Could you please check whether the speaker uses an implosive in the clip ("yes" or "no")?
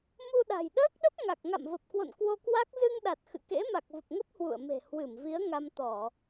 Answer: yes